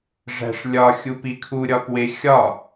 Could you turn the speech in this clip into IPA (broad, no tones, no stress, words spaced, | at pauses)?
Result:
ʐæ̤ʂlʲɒ xʲupikʰu ɾʲɒpwexʲɒ